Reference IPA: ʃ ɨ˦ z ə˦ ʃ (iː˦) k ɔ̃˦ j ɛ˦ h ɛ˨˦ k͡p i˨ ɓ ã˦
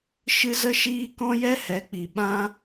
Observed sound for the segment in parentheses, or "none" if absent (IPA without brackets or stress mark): iː˦